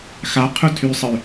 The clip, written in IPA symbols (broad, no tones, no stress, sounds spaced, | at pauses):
x a qʰ u tʰ y sˤ ə y̯